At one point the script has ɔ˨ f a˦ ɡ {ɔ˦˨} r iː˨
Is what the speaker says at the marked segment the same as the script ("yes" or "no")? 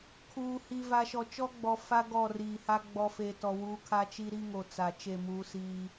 yes